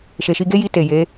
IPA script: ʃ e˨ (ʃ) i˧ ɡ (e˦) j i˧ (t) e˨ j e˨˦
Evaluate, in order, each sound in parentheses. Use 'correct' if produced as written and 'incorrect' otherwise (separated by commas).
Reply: correct, correct, correct